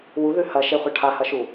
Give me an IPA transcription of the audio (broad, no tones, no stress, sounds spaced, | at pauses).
w u ð ʉ h ɐ ʃ e χʷ ɐ ʈʰ a h ɐ ʃ u